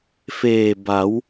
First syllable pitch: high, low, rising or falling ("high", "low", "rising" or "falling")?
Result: low